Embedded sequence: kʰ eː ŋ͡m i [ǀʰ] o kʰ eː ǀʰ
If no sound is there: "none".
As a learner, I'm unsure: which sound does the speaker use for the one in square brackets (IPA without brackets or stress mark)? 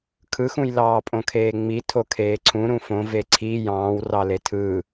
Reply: tʰ